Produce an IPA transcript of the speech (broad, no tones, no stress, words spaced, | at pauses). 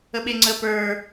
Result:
əɓeŋ͡ǀə pə˞